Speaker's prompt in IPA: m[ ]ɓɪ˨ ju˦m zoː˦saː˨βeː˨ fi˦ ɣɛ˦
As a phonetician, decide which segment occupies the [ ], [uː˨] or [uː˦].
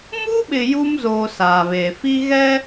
uː˦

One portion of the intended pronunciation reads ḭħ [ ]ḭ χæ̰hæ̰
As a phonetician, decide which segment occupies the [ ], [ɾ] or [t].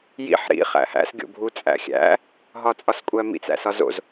ɾ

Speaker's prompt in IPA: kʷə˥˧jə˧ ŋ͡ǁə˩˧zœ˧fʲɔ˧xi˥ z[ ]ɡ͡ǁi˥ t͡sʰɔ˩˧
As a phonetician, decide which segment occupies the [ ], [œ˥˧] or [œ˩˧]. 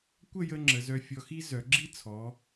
œ˩˧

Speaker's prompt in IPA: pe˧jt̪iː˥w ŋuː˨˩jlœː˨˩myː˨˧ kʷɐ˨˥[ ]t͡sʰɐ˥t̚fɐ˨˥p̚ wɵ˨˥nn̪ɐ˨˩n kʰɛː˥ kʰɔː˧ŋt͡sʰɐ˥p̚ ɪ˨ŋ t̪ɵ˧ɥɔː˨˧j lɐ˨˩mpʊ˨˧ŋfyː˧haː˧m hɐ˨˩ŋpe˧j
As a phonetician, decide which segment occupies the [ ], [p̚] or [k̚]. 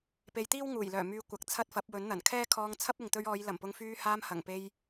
k̚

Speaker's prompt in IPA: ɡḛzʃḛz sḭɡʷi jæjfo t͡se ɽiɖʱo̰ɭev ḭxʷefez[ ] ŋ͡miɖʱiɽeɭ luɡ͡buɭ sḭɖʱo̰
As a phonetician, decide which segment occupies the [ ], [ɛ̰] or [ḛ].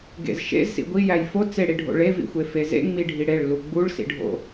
ḛ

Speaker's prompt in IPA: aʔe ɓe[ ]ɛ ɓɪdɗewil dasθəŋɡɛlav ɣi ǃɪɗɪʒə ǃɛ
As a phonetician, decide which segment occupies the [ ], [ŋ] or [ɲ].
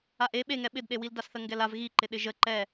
ŋ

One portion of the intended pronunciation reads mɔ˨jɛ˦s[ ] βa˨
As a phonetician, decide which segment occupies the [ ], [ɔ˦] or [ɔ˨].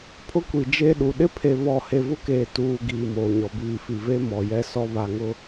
ɔ˦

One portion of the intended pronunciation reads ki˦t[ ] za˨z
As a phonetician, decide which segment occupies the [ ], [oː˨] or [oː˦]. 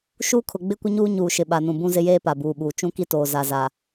oː˨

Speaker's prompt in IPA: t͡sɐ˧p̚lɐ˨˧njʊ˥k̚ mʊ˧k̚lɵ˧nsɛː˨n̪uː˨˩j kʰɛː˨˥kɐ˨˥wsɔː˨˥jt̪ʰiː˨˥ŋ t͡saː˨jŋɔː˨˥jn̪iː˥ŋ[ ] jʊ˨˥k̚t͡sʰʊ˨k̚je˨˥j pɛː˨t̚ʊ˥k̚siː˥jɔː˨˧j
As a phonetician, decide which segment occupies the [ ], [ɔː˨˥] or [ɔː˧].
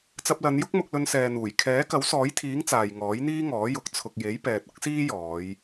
ɔː˨˥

